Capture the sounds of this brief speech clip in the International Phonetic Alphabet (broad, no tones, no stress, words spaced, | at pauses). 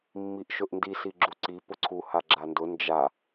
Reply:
mːiʔʃɵʔndi siɡ͡ǁuǀi pʊǀʰu haɡ͡ǁandʊ nd͡ʒa